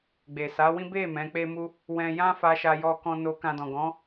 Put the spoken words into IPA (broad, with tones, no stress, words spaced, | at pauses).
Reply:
ɡ͡be˨sa˨˦wĩ˦ be˦˨ mɛ̃˨˦k͡pe˦mu˦ | wɛ̃˧jã˦fa˧ʃa˧ jɔ˧kɔ̃˧ no˧kã˧dɔ̃˨ɡɔ̃˨˦